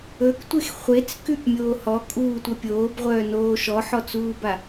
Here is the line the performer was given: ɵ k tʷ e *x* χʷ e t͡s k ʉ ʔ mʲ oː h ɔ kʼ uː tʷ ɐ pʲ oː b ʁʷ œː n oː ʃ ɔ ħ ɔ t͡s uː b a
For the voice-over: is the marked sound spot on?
yes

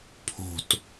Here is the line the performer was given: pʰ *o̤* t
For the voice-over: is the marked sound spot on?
yes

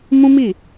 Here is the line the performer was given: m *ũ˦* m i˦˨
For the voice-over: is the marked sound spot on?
yes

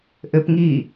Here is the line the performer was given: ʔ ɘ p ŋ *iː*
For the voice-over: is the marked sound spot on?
yes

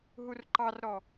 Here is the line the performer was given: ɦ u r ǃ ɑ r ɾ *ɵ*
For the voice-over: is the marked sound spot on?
no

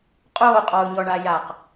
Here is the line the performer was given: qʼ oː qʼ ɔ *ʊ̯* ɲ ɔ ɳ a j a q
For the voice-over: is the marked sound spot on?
yes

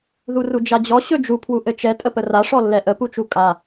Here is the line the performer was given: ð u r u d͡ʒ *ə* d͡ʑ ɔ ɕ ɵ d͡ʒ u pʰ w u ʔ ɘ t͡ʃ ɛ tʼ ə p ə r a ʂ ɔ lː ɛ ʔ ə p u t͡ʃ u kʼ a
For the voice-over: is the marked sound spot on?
no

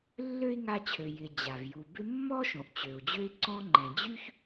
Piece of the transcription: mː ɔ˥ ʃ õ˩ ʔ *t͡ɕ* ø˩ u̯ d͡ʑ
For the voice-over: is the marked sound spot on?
yes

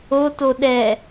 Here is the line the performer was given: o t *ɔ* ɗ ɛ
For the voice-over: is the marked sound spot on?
no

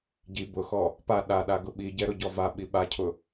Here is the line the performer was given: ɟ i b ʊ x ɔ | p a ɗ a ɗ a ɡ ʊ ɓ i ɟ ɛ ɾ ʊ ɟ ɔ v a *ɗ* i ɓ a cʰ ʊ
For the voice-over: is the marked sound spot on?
no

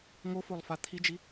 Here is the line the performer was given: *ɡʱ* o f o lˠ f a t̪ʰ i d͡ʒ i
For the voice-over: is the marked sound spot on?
no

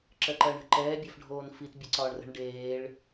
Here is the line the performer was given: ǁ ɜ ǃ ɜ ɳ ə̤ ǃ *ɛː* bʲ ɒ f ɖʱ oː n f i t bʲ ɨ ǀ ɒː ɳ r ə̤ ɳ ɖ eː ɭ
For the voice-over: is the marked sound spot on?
yes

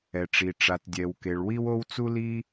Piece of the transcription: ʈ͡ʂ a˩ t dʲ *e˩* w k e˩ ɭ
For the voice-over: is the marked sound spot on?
no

